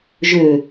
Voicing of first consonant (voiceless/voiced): voiced